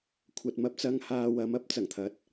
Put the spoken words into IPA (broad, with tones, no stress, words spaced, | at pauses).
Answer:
kʷʰɐ˨t̚mɐ˧p̚t͡sɐ˧ŋ haː˧wɐ˨˥mɐ˨˥p̚ t͡sɐ˨˩ŋt̪ʰɐ˨˥t̚